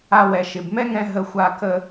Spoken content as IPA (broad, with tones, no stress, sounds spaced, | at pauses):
a˦ w ɛ˨ ʃ ɪ˩ b m ɛ˥ ŋ ɛ̃˦ ɦ ə˦ xʷ a˦ k ə˥